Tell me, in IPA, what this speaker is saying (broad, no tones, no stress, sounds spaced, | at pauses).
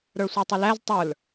ɾ ə˞ sʷ ə˞ tˤ ʊ l æ z tˤ ə˞ l